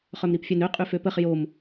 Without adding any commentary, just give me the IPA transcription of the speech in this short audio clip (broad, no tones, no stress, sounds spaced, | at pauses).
χ œ m ɾ i p fʲ œ n ø qʼ y f ø p ə χ j o m